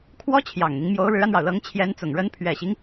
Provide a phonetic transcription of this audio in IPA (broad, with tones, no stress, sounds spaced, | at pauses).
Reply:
kʰ w ɔ˥ t͡ɕʰ j ɑ˨˩ ŋ n̪ i˦ ŋ m j o˧˥ ʊ̯ ɻ ɻ̩˧˥ a˧ n ɻ ɑ˩ ʊ̯ l ɤ˧˥ ŋ t͡ɕʰ j ɛ˧˥ n t͡s ʊ˨˩ ŋ ɻ ə˧˥ n pʰ ɥ ɛ˨˩ ɕ i˦ ŋ